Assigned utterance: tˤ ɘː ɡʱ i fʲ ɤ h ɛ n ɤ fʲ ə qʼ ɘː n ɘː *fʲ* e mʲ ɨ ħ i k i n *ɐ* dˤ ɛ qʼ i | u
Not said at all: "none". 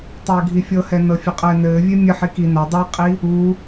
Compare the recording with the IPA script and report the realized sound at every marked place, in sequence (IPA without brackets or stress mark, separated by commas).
vʲ, ɐ